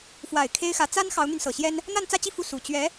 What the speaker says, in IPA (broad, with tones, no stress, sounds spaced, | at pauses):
f w a˨˩ ɪ̯ kʰ e˥ ɪ̯ x ä˧˥ t͡s a˥ n x ɑ˧˥ ʊ̯ n̪ y˧ n s ɤ˨˩ ɕ j ɛ˥ n | n̪ a˥˧ n t͡s ä˥˧ t͡ɕ i˥˧ f u˥˩ s u˨˩ t͡ɕ ɥ ɛ˧˥